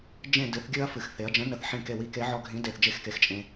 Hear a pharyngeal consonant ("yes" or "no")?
yes